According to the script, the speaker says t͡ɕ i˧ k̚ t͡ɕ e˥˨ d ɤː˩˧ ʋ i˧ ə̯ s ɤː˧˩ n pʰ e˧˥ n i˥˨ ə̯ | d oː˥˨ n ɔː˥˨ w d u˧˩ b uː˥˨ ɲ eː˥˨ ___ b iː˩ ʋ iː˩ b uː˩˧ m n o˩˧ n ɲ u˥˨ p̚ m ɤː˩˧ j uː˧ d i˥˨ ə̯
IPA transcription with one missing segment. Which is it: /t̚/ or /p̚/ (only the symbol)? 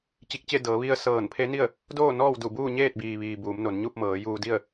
t̚